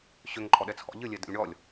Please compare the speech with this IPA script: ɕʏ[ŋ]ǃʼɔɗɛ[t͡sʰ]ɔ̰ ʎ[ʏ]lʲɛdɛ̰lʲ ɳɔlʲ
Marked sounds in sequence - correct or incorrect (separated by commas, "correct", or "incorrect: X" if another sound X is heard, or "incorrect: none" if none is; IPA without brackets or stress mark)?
correct, correct, incorrect: ɨ